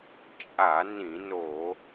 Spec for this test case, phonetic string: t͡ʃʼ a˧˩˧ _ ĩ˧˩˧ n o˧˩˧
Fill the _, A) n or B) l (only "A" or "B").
A